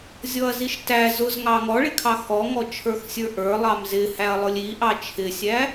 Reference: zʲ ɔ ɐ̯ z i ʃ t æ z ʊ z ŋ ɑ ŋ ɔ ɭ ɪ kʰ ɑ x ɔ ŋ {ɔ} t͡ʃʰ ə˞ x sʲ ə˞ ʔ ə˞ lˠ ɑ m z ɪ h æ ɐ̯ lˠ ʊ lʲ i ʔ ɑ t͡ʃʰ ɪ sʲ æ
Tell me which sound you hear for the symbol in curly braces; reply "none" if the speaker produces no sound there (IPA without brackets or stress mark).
ɔ